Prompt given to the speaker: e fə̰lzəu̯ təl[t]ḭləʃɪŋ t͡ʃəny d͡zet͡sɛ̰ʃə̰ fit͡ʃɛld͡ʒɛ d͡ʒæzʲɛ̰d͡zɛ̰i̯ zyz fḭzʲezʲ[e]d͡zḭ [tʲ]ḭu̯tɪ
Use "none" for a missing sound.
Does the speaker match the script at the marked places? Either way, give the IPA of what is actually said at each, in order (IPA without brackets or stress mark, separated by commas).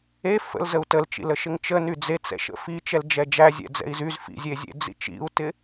t͡ʃ, ḛ, t͡ʃ